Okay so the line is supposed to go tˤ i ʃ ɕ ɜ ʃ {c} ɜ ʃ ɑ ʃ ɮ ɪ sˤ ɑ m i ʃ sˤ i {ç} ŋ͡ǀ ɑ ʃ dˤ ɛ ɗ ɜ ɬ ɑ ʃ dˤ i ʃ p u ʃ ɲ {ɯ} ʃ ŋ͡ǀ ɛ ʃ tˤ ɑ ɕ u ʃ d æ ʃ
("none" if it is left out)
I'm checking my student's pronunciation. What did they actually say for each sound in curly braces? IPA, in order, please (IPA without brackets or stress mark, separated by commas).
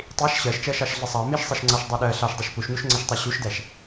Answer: t͡ʃ, ʃ, u